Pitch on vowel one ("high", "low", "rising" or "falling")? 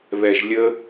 low